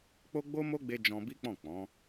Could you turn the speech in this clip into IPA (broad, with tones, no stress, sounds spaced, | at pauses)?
k͡p o˦ ɡ͡b o˦ m o˦ ɡ͡b e˧ d͡ʒ ɔ̃˧ b i˦ k͡p ɔ̃˦˨ k͡p ɔ̃˨˦